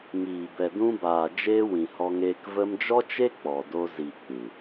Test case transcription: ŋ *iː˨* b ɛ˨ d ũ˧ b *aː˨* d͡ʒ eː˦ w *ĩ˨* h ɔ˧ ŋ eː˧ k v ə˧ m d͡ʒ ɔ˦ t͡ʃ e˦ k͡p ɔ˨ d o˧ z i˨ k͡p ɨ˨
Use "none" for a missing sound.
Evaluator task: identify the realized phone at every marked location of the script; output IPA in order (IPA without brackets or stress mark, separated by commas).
iː˨, aː˨, ĩ˨